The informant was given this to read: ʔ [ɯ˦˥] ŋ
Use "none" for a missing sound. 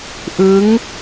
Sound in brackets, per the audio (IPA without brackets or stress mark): ɯ˦˥